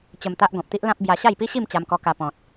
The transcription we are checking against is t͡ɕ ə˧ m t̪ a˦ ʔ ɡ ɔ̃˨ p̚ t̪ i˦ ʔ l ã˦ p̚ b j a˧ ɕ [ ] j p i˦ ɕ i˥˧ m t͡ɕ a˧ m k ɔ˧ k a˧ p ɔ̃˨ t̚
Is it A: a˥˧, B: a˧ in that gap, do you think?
A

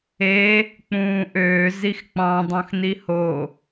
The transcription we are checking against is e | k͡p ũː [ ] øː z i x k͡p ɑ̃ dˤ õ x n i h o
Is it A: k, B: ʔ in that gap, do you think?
B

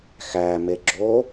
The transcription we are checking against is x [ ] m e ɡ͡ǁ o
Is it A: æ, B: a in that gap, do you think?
A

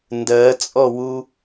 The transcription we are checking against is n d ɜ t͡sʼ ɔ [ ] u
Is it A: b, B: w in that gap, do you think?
B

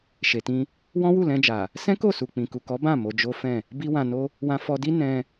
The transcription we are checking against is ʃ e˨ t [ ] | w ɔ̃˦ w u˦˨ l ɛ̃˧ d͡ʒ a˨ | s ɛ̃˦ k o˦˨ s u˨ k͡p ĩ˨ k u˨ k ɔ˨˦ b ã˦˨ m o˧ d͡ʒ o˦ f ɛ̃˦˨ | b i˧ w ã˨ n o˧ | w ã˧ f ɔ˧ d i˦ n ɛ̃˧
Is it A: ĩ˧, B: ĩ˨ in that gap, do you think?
A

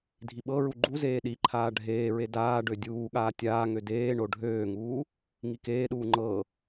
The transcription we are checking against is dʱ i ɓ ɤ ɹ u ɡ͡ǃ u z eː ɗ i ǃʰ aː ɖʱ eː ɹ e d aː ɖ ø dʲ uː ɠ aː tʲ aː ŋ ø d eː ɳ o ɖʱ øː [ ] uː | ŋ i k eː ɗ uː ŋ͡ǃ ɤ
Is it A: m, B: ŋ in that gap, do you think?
B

